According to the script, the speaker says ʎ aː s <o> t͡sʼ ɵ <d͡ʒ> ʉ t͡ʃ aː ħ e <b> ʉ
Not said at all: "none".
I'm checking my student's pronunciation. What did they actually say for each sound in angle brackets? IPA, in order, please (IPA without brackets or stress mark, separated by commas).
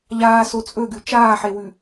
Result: o, ɡ, w